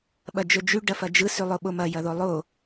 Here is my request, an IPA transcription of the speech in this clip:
ɓɐd͡ʒɵd͡ʒy ɖɐfɐd͡ʒɯ sylˠoɓomɐ jɐðolˠo

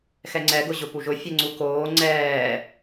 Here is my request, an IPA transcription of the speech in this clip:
xɛŋ͡ǀɛɡʊʑʊ puʒʊ fʲɛŋ͡ǀukoː ŋ͡ǀɛː

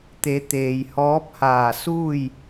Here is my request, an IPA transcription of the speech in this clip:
t̪e˩˧ t̪eː˩jhɔː˧˥p̚haː˧˩ suː˥˨j

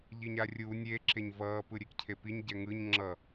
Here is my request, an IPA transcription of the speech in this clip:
ʎiɲarʲu nʲeǁeɲ vʌːpɯɾʲekcʰe piɲɟɛ ŋɯɲ ŋ͡ǁʌ

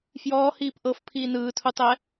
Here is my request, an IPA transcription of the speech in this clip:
fjɔːhiːp ʔɤfpʰiː nɯːtʰutˤɛ

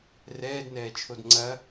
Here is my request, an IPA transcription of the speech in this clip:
rɛːdnɛːt͡ʃʰod ŋ͡ǀɐ

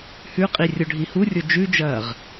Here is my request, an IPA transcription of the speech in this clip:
hʉqʼi rʲoɖʱihurʲo d͡ʒʉd͡ʒɐːʁ

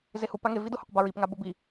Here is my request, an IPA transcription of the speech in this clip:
zehupa ŋe vidʊhuq baɹip ŋabʊbi

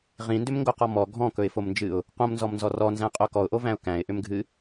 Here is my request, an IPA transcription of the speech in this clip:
ʁĩndʏmŋɡoqɔ mɔ ɡʱɔ̃kɵɪ̯fomnd͡ʒɨʊ̯ | qõmnzɔmnzɔ rɔnzæ̃qʼo kɔʊ̯ʔovæ̃ʊ̯ kæ̃ɪ̯ʔʏmɡʱɨ

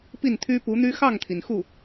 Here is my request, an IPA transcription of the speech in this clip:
pi˥˩nt̪ʰy˥ pu˧˥n̪y˥ xɑ˥˩ŋt̪ʰi˩n xu˥˩

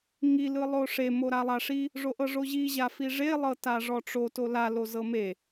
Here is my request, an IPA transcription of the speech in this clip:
ŋi lɯlˠoʂe moɾalˠaʂi | ʐoʔɤʐoʑi ʑafiʐe lˠɤtaʐɔʈ͡ʂo tola lozɤme

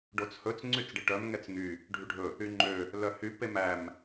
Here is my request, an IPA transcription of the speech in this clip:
ɖot͡shɵt͡s ŋ͡ǀyt͡sɖeʈœm ŋɛt͡sŋy | ɖʱyɖʱɵ | yŋ͡ǃø | lœhy pemæm

